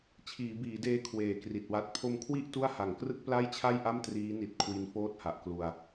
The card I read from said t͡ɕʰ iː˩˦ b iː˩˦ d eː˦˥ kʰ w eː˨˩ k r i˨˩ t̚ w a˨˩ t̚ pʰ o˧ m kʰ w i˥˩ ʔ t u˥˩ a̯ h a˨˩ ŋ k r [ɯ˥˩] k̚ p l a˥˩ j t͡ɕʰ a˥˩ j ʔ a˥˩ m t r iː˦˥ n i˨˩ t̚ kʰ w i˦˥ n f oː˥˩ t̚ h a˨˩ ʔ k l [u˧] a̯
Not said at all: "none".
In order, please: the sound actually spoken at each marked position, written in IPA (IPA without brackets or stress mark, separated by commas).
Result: ɯ˥˩, u˧